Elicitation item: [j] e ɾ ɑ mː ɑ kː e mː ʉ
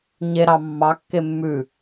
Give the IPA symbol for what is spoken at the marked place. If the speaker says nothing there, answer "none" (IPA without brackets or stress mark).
ɲ